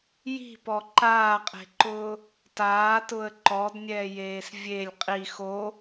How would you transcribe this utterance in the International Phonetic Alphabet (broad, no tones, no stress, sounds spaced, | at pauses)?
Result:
j i̤ p ɔ ǃ aː qʼ e̤ ǃ ʊː | t aː t ʊ ə̯ ǃ ɔ d nʲ ɛː j eː s vʲ e lʲ qʼ i x o